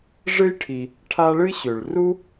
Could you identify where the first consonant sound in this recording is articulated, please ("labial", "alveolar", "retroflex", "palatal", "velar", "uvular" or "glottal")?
retroflex